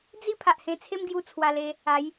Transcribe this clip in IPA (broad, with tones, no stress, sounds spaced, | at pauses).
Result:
d͡z i˦ pʰ a˨ ʔ h ẽ˧ t͡sʰ e˦ m ɡ j u˧ t͡sʰ w a˧ l e˧ | a˨˦ j